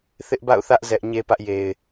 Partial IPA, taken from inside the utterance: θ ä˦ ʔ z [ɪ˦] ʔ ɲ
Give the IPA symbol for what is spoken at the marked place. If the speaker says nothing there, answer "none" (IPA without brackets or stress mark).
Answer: ɛ˦